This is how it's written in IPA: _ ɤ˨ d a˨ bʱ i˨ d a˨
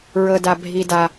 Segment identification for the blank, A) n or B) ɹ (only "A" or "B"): B